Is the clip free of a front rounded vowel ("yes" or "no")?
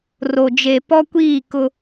yes